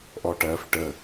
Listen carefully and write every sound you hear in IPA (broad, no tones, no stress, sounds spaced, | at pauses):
ʔ ɔ ʈ ɜ f ʈ ə